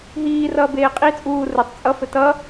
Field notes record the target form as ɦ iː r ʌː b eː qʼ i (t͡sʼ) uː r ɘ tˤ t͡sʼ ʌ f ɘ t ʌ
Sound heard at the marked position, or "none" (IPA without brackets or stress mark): t͡sʼ